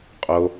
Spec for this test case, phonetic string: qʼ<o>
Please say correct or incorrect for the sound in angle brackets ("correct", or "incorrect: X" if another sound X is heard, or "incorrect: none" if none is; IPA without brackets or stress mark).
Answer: correct